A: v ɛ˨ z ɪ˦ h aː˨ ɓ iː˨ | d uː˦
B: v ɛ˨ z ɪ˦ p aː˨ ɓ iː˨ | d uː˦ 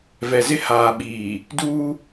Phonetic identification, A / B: A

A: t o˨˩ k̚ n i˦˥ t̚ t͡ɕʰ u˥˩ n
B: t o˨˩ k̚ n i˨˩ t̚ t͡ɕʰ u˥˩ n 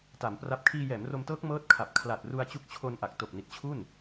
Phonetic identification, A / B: B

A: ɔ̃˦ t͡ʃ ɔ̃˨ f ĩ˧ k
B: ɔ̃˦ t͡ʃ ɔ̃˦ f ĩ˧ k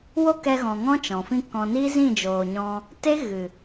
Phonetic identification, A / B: A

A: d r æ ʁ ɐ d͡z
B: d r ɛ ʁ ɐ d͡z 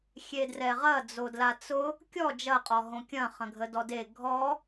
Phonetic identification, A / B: B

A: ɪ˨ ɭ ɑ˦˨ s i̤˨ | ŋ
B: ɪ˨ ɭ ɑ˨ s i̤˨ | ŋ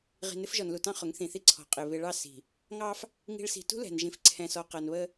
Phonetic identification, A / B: A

